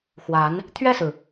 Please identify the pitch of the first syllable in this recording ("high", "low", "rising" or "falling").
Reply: rising